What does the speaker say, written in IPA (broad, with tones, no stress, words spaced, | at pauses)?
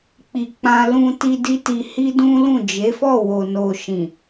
k͡pi˧k͡pã˦ lũ˧ ti˧ di˦ti˧ hi˦dũ˦lũ˦˨ d͡ʒe˨˦fɔ˦˨wo˨ no˧ ʃĩ˨